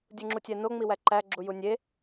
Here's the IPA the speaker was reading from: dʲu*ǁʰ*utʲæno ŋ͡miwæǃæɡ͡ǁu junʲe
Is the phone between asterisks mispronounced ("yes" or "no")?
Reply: yes